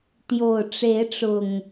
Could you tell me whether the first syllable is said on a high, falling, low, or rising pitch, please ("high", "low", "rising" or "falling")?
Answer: low